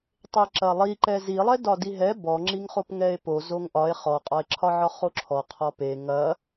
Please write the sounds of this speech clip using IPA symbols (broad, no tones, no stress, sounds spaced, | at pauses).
tˤ e ǁ ɐ lˠ i ǃ ɛ z i lˠ ɛ d ɒ d i ɦ ɛ b ɔ ŋ͡ǁ i ŋ χ o p ŋ ɛ e̯ p o z o ŋ ʔ ɒ e̯ χ ɔ qʼ ɒ e̯ ǁʰ ɒ ʕ ɒ χ o ǁʰ ɔ qʰ ɔ p e ŋ ɐ